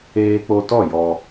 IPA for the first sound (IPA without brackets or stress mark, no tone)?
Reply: eː